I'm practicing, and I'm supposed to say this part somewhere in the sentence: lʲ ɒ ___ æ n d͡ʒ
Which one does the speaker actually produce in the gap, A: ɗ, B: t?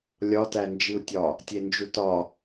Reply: B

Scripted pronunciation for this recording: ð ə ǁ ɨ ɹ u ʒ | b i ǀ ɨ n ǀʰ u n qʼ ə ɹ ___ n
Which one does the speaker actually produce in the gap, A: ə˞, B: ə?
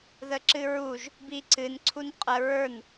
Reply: A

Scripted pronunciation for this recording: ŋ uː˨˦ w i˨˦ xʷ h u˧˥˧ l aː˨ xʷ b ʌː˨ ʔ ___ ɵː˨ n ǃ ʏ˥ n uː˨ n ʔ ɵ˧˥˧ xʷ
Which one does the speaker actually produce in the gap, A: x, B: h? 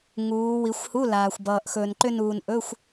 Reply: A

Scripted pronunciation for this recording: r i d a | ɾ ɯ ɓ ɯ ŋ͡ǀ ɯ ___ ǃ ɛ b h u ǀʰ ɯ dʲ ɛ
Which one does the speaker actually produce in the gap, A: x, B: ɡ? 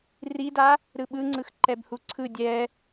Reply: A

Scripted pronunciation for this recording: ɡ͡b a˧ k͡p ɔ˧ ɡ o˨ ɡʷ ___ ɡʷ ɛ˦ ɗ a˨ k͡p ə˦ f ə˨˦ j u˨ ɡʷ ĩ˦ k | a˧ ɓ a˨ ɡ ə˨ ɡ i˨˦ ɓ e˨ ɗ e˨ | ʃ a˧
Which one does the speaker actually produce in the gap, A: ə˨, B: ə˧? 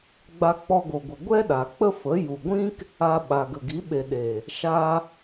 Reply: A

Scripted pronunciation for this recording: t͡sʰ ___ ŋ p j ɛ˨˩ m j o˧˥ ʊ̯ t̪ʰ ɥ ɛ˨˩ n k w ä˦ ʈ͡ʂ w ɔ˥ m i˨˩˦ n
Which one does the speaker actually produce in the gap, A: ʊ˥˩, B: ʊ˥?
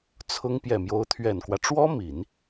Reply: B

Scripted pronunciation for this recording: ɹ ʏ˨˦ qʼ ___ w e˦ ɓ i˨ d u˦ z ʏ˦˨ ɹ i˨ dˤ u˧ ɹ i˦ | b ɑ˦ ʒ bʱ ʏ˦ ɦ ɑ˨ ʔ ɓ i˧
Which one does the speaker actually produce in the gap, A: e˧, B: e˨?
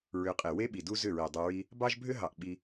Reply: B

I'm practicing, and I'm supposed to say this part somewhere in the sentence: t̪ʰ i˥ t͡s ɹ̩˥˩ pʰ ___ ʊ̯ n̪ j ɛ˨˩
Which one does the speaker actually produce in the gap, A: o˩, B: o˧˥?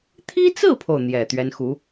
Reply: A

